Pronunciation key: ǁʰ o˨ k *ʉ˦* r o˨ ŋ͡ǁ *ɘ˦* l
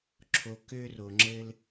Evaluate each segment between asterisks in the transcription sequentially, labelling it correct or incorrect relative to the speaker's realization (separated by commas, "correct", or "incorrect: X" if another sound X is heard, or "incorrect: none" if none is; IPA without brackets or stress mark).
incorrect: ø˦, correct